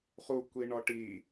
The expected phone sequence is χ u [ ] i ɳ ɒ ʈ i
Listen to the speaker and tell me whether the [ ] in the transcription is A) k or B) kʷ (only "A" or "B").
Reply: B